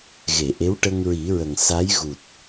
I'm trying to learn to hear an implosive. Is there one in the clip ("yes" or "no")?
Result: no